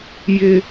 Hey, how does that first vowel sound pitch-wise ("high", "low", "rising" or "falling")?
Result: high